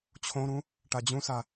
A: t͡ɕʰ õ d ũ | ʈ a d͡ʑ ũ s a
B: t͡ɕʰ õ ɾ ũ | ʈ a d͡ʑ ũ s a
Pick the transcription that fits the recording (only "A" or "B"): B